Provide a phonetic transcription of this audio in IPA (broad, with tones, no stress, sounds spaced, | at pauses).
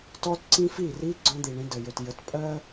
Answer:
t ɔ˦ t ǀ ĩ˦ f i˦˨ r i˦ ɡ͡ǀ ɔ̃˦ d̪ i˨ ɳ ĩ˦ d ə˨ j ɵ˨ t j ə˨˦ t pʼ ɜ˦